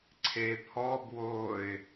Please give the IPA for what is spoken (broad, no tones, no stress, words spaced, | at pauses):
ǀʰepʰɔbwoːɪ̯